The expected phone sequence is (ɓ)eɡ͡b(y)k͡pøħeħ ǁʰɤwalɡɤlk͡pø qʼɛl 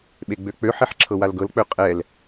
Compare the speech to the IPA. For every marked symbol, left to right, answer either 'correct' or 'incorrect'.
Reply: correct, incorrect: ø

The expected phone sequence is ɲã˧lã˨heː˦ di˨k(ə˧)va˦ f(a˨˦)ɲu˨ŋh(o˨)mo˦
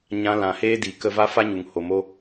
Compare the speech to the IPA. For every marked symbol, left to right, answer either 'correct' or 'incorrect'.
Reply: correct, incorrect: a˦, correct

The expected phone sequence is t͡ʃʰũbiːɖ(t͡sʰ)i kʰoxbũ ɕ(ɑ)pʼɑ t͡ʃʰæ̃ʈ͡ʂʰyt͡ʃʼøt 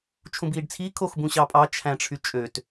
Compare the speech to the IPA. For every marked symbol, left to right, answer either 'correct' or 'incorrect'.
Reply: correct, correct

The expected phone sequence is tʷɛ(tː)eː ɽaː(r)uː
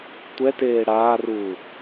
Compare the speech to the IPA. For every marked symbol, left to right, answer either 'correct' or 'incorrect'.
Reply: incorrect: t, correct

